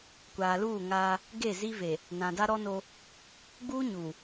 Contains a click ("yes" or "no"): no